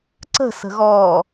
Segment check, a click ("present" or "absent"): present